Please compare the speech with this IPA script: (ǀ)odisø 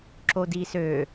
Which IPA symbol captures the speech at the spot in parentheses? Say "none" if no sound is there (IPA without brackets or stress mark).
ǁ